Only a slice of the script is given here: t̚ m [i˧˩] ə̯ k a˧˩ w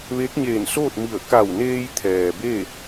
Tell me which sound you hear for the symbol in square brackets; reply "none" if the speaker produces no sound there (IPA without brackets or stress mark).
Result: i˧˩